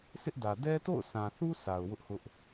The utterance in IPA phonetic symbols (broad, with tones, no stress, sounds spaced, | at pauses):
s ɪ˦ ʔ d ä˨ d ɛ˦ t o̰˦˨ ʊ̯ s ã˨ θ u˦ s a˨ ʊ̯ w ʊ˦ ʔ h ʊ˦ ʔ